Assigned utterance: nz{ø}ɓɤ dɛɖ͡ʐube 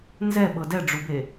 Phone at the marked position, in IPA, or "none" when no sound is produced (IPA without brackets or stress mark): ɛ